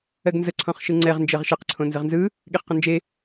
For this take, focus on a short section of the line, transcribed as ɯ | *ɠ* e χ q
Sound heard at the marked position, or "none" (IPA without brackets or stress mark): ɠ